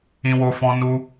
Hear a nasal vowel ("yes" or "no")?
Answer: yes